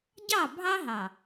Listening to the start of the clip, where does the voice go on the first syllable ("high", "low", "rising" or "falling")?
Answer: falling